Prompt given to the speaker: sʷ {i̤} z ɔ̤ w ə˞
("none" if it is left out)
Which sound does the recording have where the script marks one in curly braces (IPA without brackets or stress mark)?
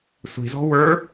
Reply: i̤